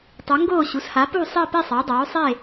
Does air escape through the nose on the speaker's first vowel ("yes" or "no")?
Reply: no